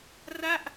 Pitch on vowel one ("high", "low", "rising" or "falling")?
falling